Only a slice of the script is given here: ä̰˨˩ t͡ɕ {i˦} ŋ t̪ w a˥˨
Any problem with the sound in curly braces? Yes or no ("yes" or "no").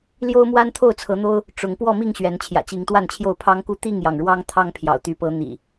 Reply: yes